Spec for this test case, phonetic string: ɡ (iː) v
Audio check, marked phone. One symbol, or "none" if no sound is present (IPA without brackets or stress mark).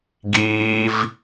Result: iː